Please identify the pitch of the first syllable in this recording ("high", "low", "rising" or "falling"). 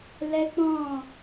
high